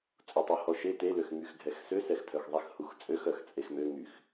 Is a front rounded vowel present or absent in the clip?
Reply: present